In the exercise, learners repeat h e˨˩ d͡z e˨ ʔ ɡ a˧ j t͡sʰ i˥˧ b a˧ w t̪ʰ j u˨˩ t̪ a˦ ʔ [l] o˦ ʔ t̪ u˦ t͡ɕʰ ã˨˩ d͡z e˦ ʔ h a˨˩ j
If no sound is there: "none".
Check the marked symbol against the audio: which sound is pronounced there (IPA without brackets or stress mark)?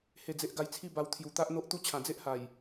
n̪